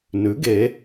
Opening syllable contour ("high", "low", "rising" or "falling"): rising